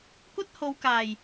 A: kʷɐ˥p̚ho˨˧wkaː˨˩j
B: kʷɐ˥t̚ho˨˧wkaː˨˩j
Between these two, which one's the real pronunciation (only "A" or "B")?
B